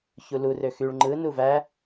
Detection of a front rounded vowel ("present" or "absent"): present